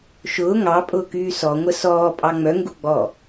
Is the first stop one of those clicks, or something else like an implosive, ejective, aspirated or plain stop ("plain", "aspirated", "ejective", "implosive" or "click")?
ejective